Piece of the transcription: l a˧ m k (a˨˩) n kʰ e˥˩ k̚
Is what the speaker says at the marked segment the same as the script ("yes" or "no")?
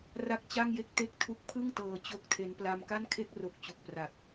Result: no